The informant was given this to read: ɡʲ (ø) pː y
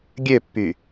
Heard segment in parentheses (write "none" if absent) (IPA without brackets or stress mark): ø